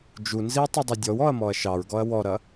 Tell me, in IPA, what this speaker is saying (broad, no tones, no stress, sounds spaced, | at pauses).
d͡ʒ u n z i w tˤ ɐ dˤ ɐ dʲ ɔ w ɔ ɐ̯ m ɔ ɐ̯ ʃ ɑ ɹ ɡ ɔ ɐ̯ w ɔ ɾ ɐ